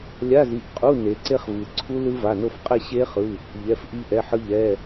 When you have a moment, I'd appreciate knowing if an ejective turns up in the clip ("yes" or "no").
yes